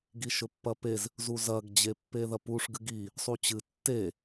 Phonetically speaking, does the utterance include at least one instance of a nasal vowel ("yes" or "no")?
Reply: no